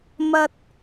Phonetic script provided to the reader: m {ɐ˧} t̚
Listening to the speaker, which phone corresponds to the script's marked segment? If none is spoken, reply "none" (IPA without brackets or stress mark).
ɐ˥